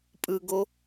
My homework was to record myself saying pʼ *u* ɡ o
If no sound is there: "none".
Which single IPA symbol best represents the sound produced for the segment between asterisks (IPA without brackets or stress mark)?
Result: ɯ